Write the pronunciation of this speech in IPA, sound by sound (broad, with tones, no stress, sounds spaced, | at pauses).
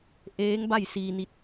ʔ eː˧˥ ŋ b a˥˨ j s iː˧ n i˧ t̚